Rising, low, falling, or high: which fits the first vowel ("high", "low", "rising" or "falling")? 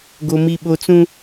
high